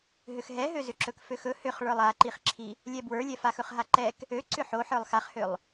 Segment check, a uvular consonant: present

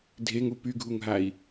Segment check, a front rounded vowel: present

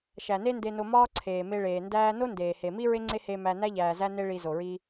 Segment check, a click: present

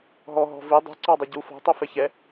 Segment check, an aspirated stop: absent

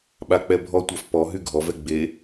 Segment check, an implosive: present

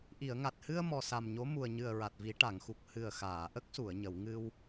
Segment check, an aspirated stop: absent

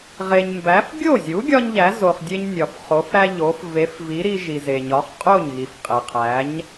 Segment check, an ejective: present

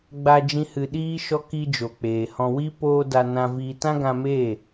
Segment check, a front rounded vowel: absent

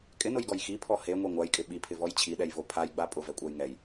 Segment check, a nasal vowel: absent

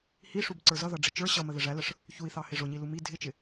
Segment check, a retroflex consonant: present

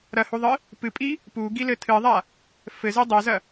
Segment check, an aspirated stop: present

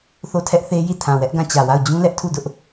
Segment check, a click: absent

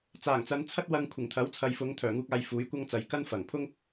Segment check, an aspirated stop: present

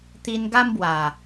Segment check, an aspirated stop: absent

